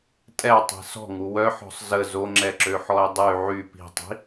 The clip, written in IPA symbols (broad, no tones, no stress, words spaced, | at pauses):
tʼɛtˤi̤ sɔ̤ŋu wœħɔ̤sˤ zə zoŋ͡ǁɛǁøħɔe̯ dˤy ʕy pi̤tˤi̤